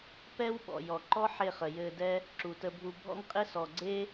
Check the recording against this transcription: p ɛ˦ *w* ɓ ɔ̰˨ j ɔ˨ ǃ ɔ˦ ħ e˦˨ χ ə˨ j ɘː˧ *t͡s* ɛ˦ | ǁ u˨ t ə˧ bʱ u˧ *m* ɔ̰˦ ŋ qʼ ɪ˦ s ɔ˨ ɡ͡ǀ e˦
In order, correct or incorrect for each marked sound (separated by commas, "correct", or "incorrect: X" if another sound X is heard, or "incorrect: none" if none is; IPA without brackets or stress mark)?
correct, incorrect: d, incorrect: bʱ